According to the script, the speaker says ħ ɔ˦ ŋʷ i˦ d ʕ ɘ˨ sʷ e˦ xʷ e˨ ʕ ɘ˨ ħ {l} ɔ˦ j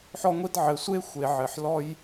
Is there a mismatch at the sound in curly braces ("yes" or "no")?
no